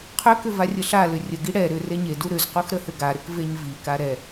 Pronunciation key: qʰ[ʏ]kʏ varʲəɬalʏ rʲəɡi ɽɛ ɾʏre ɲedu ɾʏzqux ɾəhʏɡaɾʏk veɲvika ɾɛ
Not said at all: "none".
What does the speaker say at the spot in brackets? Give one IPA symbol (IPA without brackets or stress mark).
ʏ